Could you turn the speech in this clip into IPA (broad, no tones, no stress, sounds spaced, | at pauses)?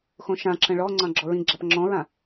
x õ ʃ ã ǁ ə̃ ɭ ɔ ŋ͡ǀ ɑ̃ ɡ͡ǁ ɔ ɹ ĩ ɡ͡ǁ a p ŋ͡ǁ ɔ̃ ɹ ã